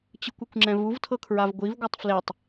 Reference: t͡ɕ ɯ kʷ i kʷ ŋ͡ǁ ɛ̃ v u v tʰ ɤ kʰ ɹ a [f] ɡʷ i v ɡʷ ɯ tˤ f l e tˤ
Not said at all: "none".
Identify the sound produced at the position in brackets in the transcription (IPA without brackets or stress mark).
v